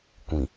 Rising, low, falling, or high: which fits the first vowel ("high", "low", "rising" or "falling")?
low